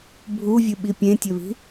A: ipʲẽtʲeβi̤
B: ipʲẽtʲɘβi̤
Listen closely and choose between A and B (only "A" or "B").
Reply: B